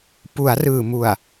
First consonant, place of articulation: labial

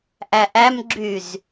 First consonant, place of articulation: glottal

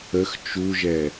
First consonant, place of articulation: velar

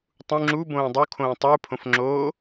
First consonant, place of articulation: alveolar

